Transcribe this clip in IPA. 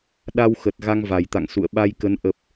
ɗa˧wxə˨˩t̚ ɣa˧ŋva˨˩jt̪a̰˧˨ŋ sṵ˧˨ə̯ɓa˧jkə˨˦n ʔə˨˩p̚

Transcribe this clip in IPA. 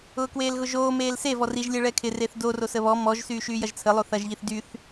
ʊːkweːlɣʊʒoː meːlse vɔriʒ lʲɛɭɛkʰɪ reθdo rosəβɔ mɔʒ syːʃyːjɐʒt͡sʰə lˠoθɐʒ ʎiθdyθ

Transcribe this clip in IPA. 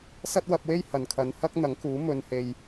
sɐ˥t̚wɐ˧p̚we˥j hɐ˨nkʰɐ˨˧n hɐ˥k̚ n̪ɐ˨˥ŋkuː˨˥ mɵ˨n he˧j

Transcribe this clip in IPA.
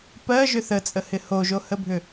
pɜʒʏ θət͡sʼəhɪ hoʒohəbʱʏ

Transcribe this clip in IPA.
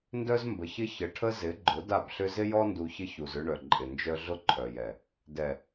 ndœ˦zmbə˨çɪ˦ çə˨ʈʰə˦zɪ˨˦ɡ͡ǃʊ˨˦ da˦˨bɬʏ˦ zɪ˦jɔ˦ndu˨ çɪ˦çu˨zʏ˦ɳœ˨ ǃʼɪ˨nd͡ʒœ˦ ɮʊ˦ǃʰœ˨jɛ˨ | dɛ˨

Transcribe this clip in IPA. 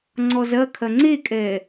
ŋ͡ǀɔzɐkʰɐ ŋ͡ǀekʼɛ

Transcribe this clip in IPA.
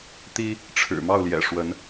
t̪i˦ | ʈ͡ʂʰɻ̩˨˩ mɑ˥˨ʊ̯ljɛ̰˨˩ ʂwə˨˦n

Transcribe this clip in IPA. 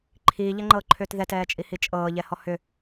ǃʰiːʎɛŋ͡ǃɤːǃʰʏːt ðɛtɛːt͡ʃʼihi t͡ʃʼɤːʎɛhɔ hʏ

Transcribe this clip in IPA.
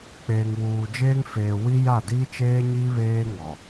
k͡peː˨ŋwuː˨d͡ʒeː˦ŋfeː˨ wi˦ja˦˨di˦t͡ʃeː˦ ɲi˦βeː˦ŋɔ˨

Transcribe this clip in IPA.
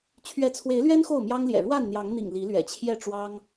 t͡ɕʰɥɛ˨˦t͡sʰwe˨˦ɪ̯lɥɛ˦n xo˥˨ʊ̯mjɑ˦ŋljɛ̰˨˩ ɻwa˥˨nn̪jɑ˨˦ŋn̪ḭ˨˩ŋ li˨˦lɥɛ̰˨˩t͡ɕʰjɛ˥˨ʈ͡ʂwɑ˦ŋ

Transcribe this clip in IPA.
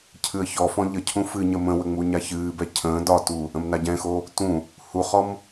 cʰɨə̯çɔfɔ̃ ʎəcʰũ fɨ ɲəmə̃wə ŋ͡muɲaçɨːbɛ cʰə̃ː dɒtu | ə̃mnaɟɛ̃xo | tũ | huχɔm

